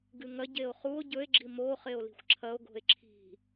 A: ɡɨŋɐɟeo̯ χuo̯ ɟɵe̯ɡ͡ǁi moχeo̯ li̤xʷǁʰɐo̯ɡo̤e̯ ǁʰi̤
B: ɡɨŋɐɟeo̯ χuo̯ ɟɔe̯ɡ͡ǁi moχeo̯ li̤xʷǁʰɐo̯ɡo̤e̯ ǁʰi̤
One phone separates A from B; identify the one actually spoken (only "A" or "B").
A